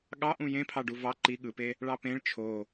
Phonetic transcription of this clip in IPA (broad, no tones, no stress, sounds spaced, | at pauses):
ɠ ɑ ʔ ũ j ẽ pʰ ɑ ɖ u v ɑ ǃ i ɠ ɯ p e | ɭ ɑ p ẽ ɭ t͡ʃʰ o